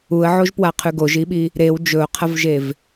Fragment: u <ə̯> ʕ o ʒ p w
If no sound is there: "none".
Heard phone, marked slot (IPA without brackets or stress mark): ə̯